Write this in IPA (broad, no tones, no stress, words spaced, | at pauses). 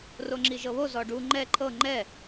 roŋ͡ǁiʒɤβo zɔɖu ŋ͡ǃɛ ǃʰɤ ŋ͡ǃɛ